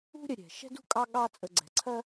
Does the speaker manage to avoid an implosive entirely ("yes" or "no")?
no